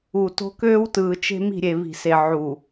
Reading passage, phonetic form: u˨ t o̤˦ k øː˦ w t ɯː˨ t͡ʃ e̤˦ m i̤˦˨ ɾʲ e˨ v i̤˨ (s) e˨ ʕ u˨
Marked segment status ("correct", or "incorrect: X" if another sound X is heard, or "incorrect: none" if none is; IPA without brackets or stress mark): correct